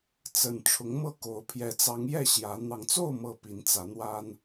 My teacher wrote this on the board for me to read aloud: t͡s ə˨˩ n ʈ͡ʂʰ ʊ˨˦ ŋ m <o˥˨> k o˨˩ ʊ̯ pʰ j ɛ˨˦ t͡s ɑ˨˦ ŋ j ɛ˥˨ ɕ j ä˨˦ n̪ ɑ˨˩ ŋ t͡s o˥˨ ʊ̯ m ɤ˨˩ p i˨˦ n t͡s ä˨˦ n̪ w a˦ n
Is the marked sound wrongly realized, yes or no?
yes